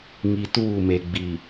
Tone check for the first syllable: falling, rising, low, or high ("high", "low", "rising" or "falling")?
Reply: low